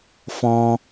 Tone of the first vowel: high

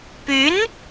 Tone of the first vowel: rising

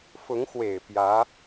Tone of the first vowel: rising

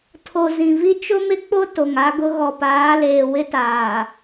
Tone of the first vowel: low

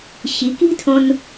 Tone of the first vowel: rising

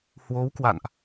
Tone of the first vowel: rising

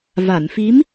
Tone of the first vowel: low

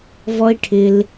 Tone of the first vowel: high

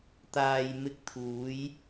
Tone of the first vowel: low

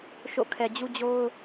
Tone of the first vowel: falling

